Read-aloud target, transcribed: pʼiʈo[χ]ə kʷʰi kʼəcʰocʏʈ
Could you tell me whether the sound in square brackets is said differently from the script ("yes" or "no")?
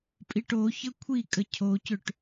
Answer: yes